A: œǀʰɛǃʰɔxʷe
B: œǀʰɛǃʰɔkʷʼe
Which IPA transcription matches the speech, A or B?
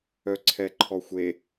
A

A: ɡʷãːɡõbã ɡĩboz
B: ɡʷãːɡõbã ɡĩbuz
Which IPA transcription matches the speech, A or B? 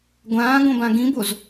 A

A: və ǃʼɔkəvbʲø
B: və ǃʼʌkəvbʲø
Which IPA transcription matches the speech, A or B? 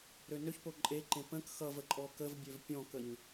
A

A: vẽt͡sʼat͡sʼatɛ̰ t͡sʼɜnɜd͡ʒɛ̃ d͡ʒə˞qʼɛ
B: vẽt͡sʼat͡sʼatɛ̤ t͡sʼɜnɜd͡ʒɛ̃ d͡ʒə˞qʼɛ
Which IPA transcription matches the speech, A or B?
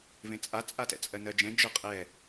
A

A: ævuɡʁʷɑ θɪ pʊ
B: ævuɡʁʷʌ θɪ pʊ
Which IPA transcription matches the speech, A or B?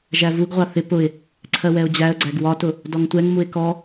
A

